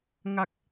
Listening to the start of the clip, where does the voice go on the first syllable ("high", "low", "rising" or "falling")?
low